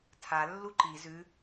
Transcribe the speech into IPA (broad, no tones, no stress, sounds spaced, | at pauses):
tʰ a lː u ǃ i z ʉ